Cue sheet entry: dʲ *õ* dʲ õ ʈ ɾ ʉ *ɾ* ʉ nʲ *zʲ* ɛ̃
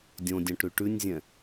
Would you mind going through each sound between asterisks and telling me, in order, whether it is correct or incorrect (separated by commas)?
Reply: correct, incorrect, correct